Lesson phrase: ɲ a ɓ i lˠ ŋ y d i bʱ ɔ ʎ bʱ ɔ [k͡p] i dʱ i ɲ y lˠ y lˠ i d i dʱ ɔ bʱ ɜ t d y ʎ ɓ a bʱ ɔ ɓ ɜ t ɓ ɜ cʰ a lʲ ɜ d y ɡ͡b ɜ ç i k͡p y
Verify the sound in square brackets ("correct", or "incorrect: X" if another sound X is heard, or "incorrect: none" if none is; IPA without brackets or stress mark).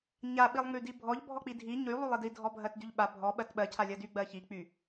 correct